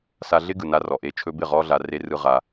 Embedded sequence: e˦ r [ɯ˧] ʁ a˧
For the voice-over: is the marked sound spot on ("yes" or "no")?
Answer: yes